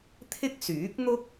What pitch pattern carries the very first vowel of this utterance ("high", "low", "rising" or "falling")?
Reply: high